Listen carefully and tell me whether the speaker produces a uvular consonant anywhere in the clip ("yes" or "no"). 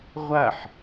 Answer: yes